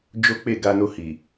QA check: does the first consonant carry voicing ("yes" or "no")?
yes